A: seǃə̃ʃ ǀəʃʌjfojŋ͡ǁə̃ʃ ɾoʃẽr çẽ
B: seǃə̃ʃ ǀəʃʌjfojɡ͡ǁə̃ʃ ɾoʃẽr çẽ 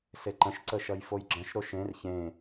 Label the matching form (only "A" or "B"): B